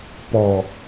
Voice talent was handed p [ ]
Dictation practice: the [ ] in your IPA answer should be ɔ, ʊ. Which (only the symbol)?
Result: ɔ